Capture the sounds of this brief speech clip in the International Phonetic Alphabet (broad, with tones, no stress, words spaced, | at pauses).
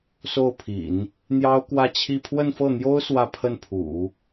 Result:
so˥˩ʊ̯pʰḭ˨˩˦n | n̪jɑ˥ʊ̯kwä˥˧t͡ɕʰi˥˧ pʰwə˥˧nfɤ˥˩n̪jo˥ʊ̯ swä˥˧pʰə˥˩npʰṵ˨˩˦